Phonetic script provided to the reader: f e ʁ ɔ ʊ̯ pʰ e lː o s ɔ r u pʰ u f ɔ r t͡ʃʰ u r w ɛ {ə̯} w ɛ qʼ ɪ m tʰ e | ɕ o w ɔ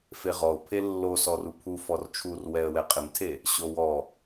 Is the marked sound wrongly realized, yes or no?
no